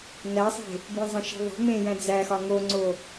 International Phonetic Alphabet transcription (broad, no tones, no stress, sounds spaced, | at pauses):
n æ sˤ e̤ | b ĩ zˤ æ̃ ʃ i̤ ðˤ e̤ m ẽ j æ̃ d͡z æ x ɒ ŋ o ŋ͡ǀ o